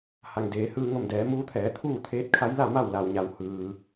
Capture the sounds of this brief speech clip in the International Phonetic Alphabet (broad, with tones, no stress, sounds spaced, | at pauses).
h a˩ ŋ d eː˩˧ h ɯː˧ ŋ o˧˩ m d ɛː˩˧ m uː˧˥ t̪ʰ ɛː˩˧ t̪ʰ uː˥˨ t̪ʰ eː˧˥ t̚ kʰ a˧˥ j l a˥˨ m a˥˨ w l a˩ w ɲ a˩ w h ɯː˩